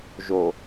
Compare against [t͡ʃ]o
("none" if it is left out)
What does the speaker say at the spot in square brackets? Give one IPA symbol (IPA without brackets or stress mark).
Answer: ʒ